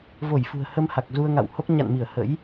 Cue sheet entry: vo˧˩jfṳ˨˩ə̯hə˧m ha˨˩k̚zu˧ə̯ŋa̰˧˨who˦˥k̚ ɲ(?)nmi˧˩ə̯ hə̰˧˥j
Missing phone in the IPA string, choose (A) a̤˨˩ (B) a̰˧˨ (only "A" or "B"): B